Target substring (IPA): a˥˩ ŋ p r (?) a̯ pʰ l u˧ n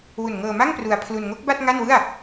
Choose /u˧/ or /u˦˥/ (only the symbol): u˧